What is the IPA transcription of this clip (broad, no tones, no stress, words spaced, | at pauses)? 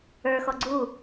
ə˞xɔ ɡ͡ǀu